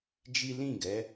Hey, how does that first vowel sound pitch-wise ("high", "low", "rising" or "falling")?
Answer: high